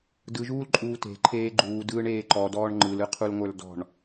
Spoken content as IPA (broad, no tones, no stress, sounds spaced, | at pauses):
d ɯ ʒ uː l ǃʼ uː t e̤ ǃʰ eː ɡ͡ǃ uː d ɯː ɳ eː ǃ ɔ d ɔː ɳ ŋ͡ǃ ɯ l ɯ qʰ u l ŋʷ ə˞ l d ɔ̤ ɳ